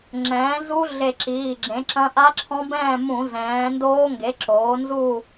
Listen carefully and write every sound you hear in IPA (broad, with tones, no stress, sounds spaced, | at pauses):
ŋ͡ǁ ɛ̃ː˩˥ z u˦˥ ɮ e˧˩ ǁ iː˩˧˩ ɡ͡ǁ ẽ˩˥ ǁ ɐ̃˦˥ ʔ a˦˥ ǁʰ ɔ̃˦˥ b ɛ̃ː˥˨ m ũ˧˩˧ z ɛ̃ː˩˥ n d oː˦˥ ŋ ɡ e˩˥ ǁ oː˩˥ n z u˥˨